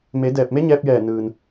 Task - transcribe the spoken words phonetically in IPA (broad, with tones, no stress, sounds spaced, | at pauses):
m e˩˧ d ɛː˧˩ p̚ m e˧˥ ɲ ɛː˧ p̚ j ɛː˧˩ n ɯː˩ n